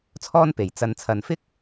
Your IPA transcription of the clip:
t͡sʰɔː˥npe˨j t͡sɐ˧n t͡sʰɐ˨nfɪ˥k̚

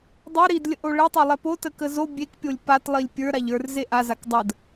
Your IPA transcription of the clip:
dˤə˞ ɾidlʲəʔo ɭɛtˤolˠɛ potə kəzo bʲekpʲolʲ patlˠilʲ pʲə˞ ɾaʎə˞r zeʔa zakdˤəd

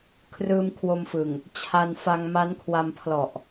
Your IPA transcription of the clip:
kʰrɯː˧mkʰwo˧mfɯ˨˩ŋ | t͡ɕʰa˧nfa˧ŋ ma˦˥nkʰwa˧mpʰlɔ˨˩ʔ

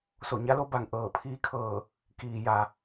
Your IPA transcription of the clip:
so˧˩ɲa˧˥lo˧ba˧˩ŋ ʔɤː˧˩pʰiː˧˥kʰɤː˧˩ | kiː˩ ja˩

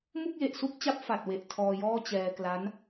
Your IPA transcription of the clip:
mu˥˩k̚je˨˩ʔsu˥˩k̚t͡ɕa˦˥p̚ fa˨˩t̚ we˨˩ʔ tʰɔː˧jɔː˥˩ t͡ɕɛː˧kla˦˥n

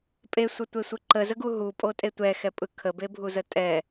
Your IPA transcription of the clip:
pʼesʷətʷesʷɯ ǃəzəɡu ɦupʼotʼe tʷɛxɛpʼɯ kʰəbebʱuzə tʼɛ

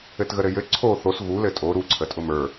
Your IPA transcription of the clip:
ɘtɣəɾɘjɘ ǀʰo θos ɣulɘ tʼo ɾuǀʰətʼʊ mə˞

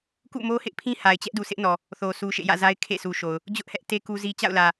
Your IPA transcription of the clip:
kṵ˦˨mo˦hɪ˦ʔpʰĩ˦ ha˨ɪ̯t͡ɕɛ˦ʔdu˨sɪ˦ʔ nɔ˨ | θo˨su˨ ʃḛ˦˨jä̰˦˨za˦ɪ̯ kʰḛ˦˨sʰu˨ʃo˨ʊ̯ | d͡ʑʊ˦ʔhɛ˦ʔte˦ ku˦zi˦ t͡ɕa̰˦˨ʊ̯lä˨

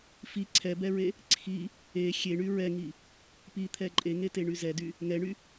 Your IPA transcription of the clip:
fi ǀʰɛbɛɹe | ǀʰi | e xʲeɳy ɹɛŋi | pit̪ʰɛ ǃʼeŋeteɳy zɛdy | ŋɛɳy

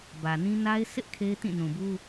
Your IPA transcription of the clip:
bä˨nĩ˦ na˦ɪ̯ sʰɪ˦ʔ kʰe˦ɪ̯tĩ˦˨nũ˨bu˦

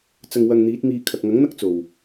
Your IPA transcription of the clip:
t͡sɐ˧ŋwɐ˧ŋn̪iː˨˥t̚miː˧ kʰɐ˨k̚ŋɐ˨˥ŋn̪ɐ˥k̚ t͡so˨˩w

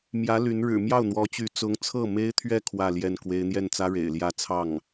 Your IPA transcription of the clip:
mjä˧˥ ly˧˥n ɻɻ̩˨˩ mjɑ˥˩ʊ̯n̪wɔ˧˥t͡ɕy˧˥ t͡sʊ˧˥ŋt͡sʰɤ˥˩me˥ɪ̯t̪ʰɥɛ˥˧ kʰwä˥˧ljɛ˥˩nkwe˥ɪ̯ n̪jɛ˥˩nt͡sä˥ ɻḛ˨˩ɪ̯ljä˥˧ t͡sʰɑ˥˩ŋ

